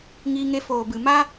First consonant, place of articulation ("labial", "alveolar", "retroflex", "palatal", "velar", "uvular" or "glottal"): velar